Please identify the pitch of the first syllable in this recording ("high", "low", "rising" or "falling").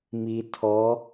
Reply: low